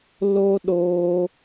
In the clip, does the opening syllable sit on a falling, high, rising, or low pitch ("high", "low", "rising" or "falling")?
high